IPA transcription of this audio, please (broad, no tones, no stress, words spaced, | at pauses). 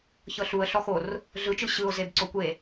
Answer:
çɤɬuə̯ ɬɔxor | ɮɯt͡ʃɯ ɕɯʊ̯zeb ǀokʷe